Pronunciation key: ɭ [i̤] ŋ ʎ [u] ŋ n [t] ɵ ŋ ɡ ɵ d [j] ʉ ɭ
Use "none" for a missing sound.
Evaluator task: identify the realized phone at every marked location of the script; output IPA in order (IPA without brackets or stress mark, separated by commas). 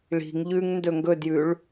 i̤, ʉ, d, j